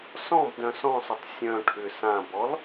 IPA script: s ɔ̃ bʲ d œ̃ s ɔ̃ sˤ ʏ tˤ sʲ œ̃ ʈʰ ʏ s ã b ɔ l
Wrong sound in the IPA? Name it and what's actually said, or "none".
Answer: bʲ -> b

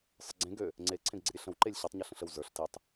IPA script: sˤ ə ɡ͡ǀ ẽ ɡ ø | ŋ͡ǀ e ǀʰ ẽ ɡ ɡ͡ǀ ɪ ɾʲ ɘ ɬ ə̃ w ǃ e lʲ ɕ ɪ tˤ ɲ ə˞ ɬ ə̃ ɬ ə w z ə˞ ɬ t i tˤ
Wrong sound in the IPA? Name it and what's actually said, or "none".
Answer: none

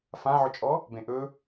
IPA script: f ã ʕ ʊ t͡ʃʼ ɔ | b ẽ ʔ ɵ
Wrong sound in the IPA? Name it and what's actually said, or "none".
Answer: none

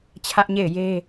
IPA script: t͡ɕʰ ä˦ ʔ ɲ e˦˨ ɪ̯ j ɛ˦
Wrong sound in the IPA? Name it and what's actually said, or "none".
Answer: ɛ˦ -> e˦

